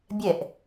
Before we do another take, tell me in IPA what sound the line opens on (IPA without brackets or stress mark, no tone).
bʲ